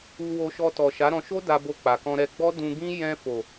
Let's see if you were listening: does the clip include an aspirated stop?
no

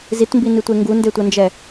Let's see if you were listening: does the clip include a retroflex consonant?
no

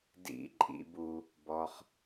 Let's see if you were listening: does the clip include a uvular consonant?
yes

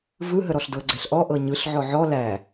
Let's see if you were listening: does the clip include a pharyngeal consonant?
yes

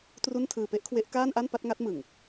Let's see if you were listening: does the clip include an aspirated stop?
yes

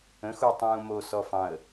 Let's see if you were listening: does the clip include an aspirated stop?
no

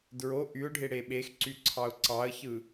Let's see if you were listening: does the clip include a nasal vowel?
no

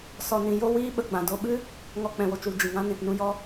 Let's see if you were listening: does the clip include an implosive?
yes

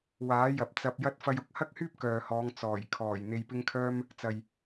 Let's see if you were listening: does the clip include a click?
no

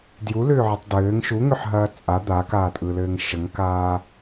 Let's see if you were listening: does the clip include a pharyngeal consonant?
yes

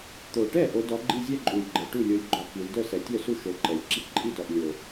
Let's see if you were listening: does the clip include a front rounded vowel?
yes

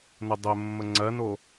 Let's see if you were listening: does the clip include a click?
yes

